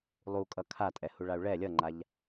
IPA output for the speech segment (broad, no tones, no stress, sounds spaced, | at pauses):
lˠ u kʼ ʌ kʰ a tʼ ɛ h u ɭ a u̯ ɭ ɛ lʲ ʌ ŋ͡ǃ a ʎ